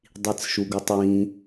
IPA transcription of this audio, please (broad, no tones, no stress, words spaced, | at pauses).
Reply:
dˤit͡sʃuɡutˤwĩ